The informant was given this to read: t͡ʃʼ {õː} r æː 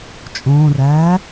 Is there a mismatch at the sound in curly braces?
no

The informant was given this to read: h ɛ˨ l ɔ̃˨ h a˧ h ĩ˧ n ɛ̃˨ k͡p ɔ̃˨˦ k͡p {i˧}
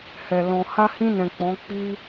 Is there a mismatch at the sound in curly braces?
no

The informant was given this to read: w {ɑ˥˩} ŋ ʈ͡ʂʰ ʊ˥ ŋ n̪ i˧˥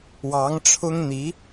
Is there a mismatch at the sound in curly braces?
yes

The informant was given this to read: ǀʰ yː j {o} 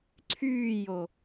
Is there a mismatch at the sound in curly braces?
no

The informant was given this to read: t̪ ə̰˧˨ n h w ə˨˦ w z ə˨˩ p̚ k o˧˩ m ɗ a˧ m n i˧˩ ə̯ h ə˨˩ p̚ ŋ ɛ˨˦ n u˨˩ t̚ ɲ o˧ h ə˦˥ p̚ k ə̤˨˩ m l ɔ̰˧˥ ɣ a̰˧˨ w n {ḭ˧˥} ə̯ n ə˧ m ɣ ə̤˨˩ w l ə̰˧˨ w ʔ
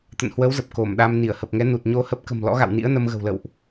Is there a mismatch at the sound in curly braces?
no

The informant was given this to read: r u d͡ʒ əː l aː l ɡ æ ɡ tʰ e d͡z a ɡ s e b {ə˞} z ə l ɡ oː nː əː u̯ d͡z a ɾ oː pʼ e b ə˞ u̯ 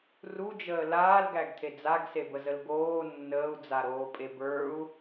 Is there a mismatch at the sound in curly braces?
yes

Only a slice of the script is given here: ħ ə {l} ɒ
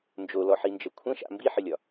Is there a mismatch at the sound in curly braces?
yes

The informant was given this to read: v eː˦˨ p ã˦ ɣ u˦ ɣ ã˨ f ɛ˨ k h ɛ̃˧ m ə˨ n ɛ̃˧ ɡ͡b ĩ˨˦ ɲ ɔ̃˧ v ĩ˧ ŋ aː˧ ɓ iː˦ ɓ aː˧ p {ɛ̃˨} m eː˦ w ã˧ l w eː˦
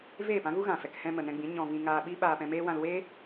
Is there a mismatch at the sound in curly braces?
yes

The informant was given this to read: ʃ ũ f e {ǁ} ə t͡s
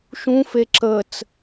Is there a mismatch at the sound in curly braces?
no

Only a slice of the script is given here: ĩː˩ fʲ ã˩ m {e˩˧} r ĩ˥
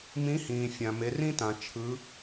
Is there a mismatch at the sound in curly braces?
no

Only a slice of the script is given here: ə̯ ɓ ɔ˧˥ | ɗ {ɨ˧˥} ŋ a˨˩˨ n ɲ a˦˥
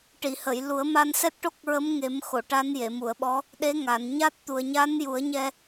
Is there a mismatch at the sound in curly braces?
yes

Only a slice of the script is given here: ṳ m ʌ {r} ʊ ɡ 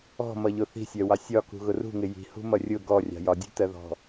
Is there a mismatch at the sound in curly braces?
yes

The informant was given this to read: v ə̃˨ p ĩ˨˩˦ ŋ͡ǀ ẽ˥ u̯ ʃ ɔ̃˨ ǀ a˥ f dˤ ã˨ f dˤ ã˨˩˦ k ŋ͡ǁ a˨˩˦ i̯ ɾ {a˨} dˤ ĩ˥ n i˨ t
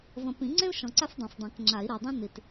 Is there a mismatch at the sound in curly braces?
no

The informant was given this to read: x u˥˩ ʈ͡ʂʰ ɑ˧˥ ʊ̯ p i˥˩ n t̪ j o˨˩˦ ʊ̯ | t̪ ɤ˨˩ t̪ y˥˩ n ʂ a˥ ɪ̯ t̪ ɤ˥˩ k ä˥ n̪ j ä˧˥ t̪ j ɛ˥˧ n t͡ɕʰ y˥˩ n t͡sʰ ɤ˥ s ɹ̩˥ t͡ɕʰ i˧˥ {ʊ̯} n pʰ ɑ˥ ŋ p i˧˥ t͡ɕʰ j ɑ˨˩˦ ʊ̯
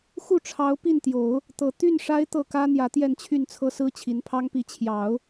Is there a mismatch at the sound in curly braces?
yes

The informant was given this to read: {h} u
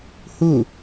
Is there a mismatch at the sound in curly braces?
no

